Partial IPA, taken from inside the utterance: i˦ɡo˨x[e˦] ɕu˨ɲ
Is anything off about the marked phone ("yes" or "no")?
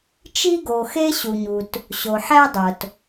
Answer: no